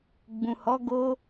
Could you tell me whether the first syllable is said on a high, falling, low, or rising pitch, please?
low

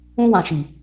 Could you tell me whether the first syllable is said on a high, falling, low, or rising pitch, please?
high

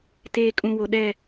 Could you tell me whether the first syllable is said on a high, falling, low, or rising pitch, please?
low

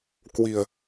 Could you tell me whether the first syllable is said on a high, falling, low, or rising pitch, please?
low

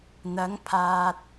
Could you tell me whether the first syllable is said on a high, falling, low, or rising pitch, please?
rising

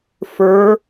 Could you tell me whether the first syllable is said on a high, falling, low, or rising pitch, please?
rising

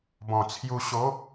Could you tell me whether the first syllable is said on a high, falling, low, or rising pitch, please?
low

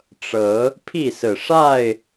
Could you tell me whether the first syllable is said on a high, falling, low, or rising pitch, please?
rising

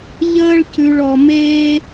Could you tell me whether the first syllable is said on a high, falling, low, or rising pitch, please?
high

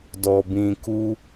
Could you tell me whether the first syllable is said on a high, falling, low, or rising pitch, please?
low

